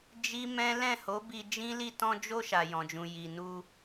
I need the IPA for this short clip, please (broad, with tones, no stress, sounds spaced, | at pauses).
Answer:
d͡ʒ i˦ m ɛ̃˦ l ɛ̃˦˨ h o˨˦ b i˧ d͡ʒ ĩ˦ l i˦˨ t ɔ̃˧ d͡ʒ o˧ ʃ a˨ j ɔ̃˨ d͡ʒ ũ˨ j i˨ n u˧